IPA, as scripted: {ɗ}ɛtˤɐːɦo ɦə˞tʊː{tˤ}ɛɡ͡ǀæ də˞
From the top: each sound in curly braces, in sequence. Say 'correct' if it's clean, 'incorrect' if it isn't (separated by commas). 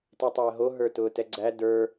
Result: incorrect, incorrect